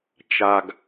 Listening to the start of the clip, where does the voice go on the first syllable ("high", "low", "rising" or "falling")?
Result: low